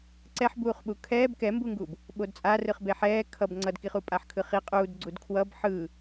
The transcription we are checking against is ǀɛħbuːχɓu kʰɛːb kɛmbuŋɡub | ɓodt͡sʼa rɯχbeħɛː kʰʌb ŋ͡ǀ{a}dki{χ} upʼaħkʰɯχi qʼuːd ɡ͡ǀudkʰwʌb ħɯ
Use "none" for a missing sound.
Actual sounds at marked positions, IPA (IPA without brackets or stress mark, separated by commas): ʌ, χ